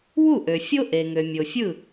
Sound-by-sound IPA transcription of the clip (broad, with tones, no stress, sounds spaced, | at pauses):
w u˥˩ ʔ ø˩ fʲ o˥ ʔ e˩ ŋ ø˩ mʲ o˩ fʲ ɯ˥˩